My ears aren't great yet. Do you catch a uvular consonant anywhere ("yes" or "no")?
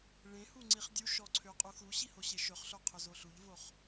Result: yes